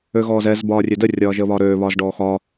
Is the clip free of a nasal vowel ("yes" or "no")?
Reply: yes